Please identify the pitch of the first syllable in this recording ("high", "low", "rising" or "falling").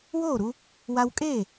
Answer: falling